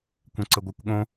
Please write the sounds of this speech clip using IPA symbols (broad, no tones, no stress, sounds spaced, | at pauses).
kʷ ɛ̃ ǀ ə ɡʷ ɛ kʷ ɠ õ